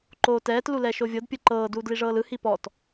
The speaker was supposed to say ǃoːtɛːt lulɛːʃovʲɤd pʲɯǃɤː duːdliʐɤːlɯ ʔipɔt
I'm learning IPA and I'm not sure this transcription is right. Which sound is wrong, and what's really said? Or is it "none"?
ʔ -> h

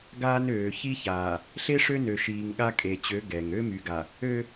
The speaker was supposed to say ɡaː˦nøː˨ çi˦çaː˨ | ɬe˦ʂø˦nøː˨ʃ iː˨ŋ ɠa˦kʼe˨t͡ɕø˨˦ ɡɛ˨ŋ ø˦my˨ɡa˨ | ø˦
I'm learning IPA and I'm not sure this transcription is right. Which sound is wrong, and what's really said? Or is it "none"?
none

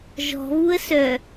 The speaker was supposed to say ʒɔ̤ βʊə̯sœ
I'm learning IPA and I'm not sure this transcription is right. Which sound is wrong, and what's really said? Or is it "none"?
ʊ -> u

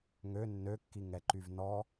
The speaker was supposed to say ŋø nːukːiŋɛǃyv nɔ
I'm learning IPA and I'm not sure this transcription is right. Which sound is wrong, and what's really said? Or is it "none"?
u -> ø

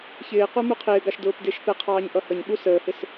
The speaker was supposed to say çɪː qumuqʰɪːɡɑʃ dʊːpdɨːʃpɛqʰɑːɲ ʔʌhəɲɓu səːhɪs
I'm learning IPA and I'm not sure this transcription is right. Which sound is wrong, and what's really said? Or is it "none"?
ɨː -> ɪː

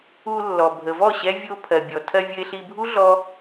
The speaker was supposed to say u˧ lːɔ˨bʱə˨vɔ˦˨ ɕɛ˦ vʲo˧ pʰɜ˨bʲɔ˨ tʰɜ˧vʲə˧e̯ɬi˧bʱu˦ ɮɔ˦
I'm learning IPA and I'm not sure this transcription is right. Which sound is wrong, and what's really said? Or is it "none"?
none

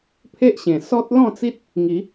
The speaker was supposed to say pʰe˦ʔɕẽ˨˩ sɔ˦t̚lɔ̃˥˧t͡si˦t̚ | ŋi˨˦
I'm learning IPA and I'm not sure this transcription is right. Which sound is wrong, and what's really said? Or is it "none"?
none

